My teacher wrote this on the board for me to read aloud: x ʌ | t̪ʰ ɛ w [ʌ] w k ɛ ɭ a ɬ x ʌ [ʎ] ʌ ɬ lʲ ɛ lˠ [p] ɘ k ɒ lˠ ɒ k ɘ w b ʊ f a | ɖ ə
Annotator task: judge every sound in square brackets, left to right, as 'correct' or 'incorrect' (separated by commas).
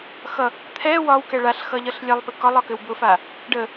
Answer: incorrect, correct, correct